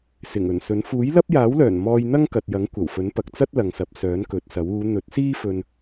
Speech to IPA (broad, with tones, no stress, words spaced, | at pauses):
sɪ˨˩ŋɵ˨˩nsɵ˨˥n fuː˨˥jlɐ˥p̚jaː˨˥wlœː˨˩n mɔː˧jn̪ɐ˥ŋkɐ˨t̚jɐ˨˥ŋ kʷɐ˨˩wfɵ˨˥n pɐ˨k̚t͡sɐ˥t̚lɐ˨ŋsɐ˨p̚ sœː˨˥nkɵ˨˥t̚sɐ˨˥w uː˨˧n̪ɵ˨˥t̚siː˥fɵ˧n